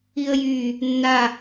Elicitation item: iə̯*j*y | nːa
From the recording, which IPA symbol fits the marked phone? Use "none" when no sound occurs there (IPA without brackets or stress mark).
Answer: j